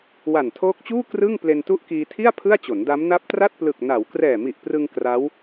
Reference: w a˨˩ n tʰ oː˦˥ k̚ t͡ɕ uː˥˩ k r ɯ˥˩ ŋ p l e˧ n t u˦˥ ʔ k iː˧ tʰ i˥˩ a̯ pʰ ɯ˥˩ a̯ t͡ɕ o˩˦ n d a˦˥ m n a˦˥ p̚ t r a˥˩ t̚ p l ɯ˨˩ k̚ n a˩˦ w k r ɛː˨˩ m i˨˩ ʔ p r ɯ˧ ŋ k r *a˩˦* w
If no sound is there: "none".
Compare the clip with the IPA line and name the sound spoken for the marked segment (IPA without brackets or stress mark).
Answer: a˦˥